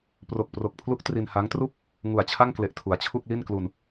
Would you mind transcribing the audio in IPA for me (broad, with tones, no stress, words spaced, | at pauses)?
pro˨˩k̚pro˨˩k̚pʰlu˦˥k̚ tri˧nha˦˥ŋtru˥˩k̚ | ŋu˨˩a̯t͡ɕʰa˥˩ŋkle˨˩ʔ tʰu˩˦a̯t͡ɕʰu˥˩k̚li˥˩nklu˧n